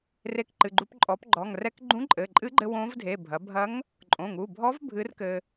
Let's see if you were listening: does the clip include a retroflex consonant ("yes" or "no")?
no